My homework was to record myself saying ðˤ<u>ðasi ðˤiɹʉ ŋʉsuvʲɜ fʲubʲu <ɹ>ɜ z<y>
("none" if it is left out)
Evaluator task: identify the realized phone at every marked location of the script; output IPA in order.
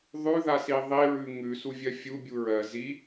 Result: ʉ, ɹ, i

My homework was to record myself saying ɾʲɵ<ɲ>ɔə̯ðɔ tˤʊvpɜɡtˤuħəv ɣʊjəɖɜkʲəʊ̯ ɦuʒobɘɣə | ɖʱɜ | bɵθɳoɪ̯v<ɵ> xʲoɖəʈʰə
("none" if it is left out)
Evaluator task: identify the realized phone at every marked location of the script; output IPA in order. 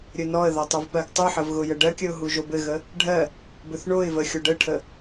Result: n, ə

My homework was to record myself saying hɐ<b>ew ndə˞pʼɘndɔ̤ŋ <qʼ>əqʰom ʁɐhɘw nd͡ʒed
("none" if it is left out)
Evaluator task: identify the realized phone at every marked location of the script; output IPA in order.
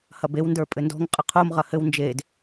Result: b, qʼ

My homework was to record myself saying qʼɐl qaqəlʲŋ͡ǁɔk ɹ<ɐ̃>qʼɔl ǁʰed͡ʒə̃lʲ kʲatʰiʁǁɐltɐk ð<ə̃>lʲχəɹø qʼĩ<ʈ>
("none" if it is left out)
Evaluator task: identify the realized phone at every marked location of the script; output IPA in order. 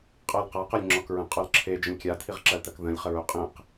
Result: ə̃, ə̃, q

